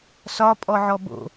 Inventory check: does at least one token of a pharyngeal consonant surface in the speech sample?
yes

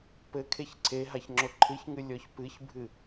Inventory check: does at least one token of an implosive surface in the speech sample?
no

